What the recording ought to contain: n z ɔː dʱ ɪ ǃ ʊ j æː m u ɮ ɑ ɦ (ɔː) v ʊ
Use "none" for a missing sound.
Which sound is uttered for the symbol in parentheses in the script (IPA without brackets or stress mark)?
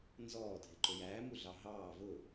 ɑː